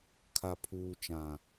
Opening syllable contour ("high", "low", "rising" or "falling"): low